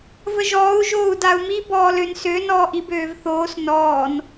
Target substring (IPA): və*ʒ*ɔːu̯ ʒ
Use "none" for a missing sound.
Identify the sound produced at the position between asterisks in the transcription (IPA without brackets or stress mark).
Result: ʒ